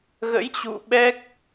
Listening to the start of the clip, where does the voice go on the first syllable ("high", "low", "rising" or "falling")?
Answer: rising